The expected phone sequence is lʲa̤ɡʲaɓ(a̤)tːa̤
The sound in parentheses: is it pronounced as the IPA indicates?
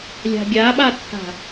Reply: no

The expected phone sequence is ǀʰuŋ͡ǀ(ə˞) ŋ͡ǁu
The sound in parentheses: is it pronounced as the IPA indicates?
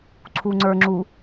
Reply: yes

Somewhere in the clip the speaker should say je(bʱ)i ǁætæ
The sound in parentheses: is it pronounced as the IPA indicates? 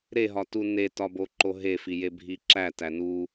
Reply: yes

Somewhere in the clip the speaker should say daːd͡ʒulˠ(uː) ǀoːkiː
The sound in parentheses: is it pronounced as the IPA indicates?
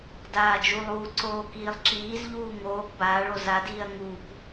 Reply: yes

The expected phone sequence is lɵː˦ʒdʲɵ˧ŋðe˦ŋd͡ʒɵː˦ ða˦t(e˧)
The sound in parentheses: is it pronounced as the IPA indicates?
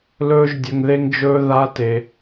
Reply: yes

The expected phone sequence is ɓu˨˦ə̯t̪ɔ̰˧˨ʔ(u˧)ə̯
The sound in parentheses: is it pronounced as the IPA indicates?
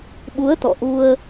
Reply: yes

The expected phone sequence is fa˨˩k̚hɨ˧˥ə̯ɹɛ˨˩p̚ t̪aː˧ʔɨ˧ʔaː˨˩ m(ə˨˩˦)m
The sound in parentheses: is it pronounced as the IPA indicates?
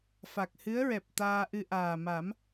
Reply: no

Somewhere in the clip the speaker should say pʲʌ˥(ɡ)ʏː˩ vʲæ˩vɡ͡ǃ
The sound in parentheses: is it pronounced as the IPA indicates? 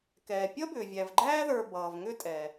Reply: no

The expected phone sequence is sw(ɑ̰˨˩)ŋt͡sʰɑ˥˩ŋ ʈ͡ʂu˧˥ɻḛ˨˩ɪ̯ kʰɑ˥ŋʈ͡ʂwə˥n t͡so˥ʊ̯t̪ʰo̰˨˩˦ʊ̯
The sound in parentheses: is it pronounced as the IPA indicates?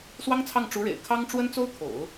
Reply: no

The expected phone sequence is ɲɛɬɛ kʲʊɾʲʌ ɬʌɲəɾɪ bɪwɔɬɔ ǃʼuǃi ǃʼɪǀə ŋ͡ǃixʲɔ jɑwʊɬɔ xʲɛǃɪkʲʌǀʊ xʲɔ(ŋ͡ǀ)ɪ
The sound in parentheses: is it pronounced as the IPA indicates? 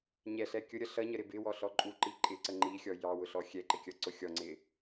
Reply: yes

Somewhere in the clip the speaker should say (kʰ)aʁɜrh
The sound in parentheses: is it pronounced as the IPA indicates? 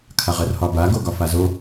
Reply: yes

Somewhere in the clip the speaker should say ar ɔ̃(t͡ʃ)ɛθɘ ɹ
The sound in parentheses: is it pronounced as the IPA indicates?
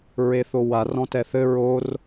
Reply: no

